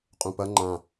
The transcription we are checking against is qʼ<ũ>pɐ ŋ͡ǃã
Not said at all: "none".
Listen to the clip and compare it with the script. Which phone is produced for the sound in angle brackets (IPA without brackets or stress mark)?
ũ